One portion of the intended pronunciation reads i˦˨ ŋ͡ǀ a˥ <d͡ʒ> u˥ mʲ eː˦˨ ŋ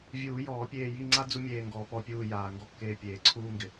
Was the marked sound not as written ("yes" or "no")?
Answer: yes